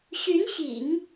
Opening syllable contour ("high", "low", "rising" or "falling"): rising